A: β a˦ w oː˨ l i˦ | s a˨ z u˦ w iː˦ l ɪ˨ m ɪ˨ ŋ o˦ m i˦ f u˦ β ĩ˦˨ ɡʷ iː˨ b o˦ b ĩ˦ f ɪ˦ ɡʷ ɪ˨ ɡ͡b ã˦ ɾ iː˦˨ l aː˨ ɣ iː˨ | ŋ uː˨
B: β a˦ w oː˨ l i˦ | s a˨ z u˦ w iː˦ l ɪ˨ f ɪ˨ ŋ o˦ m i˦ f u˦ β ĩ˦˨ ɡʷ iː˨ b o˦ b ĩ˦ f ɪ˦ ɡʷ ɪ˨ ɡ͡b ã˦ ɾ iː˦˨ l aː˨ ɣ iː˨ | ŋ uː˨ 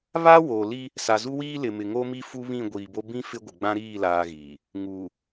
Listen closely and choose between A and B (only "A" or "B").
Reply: A